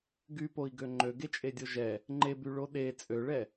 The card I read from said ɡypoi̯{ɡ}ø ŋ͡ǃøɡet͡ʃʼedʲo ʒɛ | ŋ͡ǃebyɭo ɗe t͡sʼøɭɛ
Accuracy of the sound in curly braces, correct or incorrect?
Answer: correct